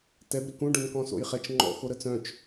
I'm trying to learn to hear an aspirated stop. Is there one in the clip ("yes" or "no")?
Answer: no